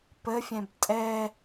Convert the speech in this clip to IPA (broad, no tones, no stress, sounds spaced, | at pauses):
p ə fʲ ɛ̃ b tʼ ɛ